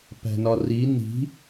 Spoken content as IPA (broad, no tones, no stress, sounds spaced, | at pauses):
p æ̤ n ɒ r i n i̤